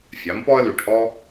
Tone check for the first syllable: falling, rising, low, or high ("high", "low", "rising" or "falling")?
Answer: rising